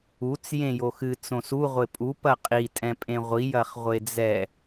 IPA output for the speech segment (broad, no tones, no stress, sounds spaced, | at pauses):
u t͡s j ẽ j o x ɨ t͡s õ s u ʁʷ e pʼ u p ɐ qʼ i tʼ ɛ̃ pʼ ẽ ʁʷ i j ɐ χ ʁʷ e d͡z ɛ